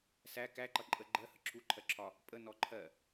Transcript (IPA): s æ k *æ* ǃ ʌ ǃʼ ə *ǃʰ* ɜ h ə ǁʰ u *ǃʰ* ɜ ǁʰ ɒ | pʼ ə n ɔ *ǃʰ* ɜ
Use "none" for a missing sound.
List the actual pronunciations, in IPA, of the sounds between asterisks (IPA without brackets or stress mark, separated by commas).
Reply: æ, ɡ͡ǃ, ǃʰ, ǃʰ